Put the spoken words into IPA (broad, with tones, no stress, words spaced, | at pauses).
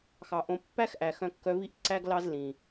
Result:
xɑ˨ʔõ˨ pːæ˦xʔæ˨ xœ̃˧kːœ˧vi˦ʔ ǀæ˦ɡ lɑ˦zlĩ˨